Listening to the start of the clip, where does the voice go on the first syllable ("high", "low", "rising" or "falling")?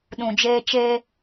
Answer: low